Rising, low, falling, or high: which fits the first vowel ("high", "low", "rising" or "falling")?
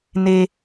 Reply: high